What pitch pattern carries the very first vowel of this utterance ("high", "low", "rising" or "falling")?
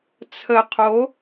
low